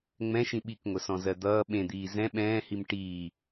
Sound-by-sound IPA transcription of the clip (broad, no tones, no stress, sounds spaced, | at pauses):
ŋ͡m ɛ̃ ʃ ĩ ɓ i k ŋʷ ə s ɔ̃ z ɜ d̪ ʌː ɓ ẽ d̪ iː z ɛ̃ ɓ ɛ̃ː h i m ʈ iː